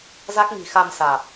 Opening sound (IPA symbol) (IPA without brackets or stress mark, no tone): z